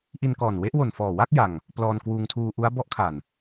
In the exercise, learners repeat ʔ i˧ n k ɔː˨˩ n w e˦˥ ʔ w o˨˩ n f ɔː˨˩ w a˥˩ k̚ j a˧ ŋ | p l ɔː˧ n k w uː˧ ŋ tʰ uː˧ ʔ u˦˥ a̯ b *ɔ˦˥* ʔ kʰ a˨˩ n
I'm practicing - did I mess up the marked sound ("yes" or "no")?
no